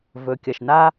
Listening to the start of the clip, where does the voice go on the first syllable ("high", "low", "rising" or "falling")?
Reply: low